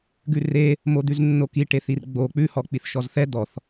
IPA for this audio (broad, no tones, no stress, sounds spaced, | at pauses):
ɡ ʉ r e | m o d̪ ʉ z nː o k i ʈ e θ i r ɡ͡b o k͡p ʉ h ɔ k͡p i θ ʃ ɔ z θ ɛ d̪ ɔ θ